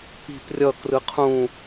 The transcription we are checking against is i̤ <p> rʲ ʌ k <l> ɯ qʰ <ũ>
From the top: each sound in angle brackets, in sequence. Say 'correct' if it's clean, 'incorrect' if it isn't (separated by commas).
correct, incorrect, correct